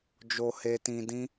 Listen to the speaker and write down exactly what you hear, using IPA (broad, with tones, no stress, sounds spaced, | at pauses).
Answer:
d͡ʒ o˨ h e˨ t ĩ˨ d ĩ˧